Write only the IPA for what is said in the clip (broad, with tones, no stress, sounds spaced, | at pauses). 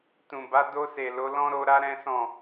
t ũ˨ b a˨˦ d o˧ s e˨ l o˨˦ l ɔ̃˦ ɾ o˧ ɾ a˦ ɾ ɛ̃˦ s ɔ̃˦˨